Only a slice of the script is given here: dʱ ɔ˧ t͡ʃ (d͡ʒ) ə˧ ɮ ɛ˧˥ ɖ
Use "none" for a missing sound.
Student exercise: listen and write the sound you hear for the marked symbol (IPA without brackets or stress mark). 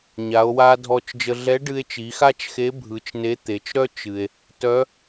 d͡ʒ